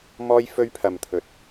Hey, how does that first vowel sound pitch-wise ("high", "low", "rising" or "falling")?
high